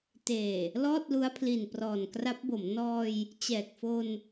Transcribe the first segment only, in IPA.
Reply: t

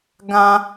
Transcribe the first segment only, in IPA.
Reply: ɡ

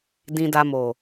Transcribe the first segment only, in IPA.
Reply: d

